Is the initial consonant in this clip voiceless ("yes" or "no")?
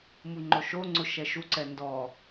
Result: no